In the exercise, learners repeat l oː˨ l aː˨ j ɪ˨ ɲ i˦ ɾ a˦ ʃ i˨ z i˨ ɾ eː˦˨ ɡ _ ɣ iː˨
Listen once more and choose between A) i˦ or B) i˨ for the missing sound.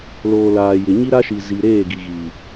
B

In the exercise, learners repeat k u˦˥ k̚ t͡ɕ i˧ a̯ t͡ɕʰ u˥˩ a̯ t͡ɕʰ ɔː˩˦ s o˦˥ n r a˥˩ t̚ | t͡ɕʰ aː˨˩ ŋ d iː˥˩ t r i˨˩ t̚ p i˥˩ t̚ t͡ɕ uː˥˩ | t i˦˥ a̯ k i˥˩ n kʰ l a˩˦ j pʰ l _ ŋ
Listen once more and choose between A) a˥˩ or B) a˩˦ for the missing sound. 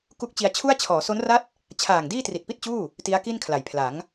B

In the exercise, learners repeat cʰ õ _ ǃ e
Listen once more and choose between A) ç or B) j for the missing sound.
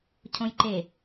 B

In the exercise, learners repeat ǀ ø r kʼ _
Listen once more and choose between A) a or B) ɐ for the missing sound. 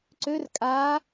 A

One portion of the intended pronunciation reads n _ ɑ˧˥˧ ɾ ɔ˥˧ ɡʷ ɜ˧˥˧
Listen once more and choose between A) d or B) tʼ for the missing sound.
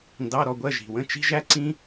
A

